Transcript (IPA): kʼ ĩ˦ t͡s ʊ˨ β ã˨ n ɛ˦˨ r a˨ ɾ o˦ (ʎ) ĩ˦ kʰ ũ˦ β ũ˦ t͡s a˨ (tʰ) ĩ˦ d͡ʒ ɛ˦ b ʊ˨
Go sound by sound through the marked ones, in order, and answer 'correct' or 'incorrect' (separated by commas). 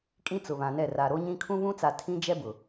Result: incorrect, correct